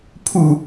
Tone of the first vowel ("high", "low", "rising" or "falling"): falling